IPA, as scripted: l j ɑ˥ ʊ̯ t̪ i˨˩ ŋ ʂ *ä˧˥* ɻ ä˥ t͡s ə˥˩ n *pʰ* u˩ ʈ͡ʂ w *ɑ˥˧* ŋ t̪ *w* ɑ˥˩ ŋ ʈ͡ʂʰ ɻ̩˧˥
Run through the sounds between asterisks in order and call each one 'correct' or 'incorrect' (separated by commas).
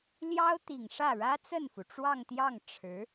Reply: incorrect, incorrect, correct, incorrect